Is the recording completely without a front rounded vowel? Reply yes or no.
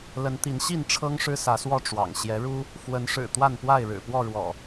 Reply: yes